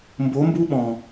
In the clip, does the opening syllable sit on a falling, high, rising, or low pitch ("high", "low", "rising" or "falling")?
rising